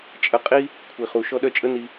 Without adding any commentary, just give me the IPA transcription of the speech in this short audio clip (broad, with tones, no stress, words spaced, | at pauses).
t͡ʃʼə˧qʼi˦ | kʷʰi˨χu˨ ʃɔ˧ɗœ˧t͡ʃʼə˦ ni˧